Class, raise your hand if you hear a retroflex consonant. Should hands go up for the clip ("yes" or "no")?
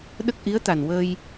no